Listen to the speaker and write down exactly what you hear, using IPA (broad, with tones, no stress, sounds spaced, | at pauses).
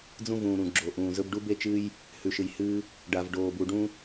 d͡z ũ˧ v ũː˩ ɾ ũ˩ ɡ͡ǁ o˩ ʔ ũː˩ z ɵ˧ b ɖ u˧ b e˧ t͡ʃ ɨ˧ j | h ʉ˩ ʃ ɨ˩ j h ɨː˧ | ɖ a˩ v ɖ oː˩ b u˩ ɖ ũ˥